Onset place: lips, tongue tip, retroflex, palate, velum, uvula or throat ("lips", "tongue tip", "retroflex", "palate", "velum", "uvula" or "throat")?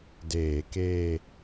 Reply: tongue tip